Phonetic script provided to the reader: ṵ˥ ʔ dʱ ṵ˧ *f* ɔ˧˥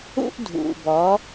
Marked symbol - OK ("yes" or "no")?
no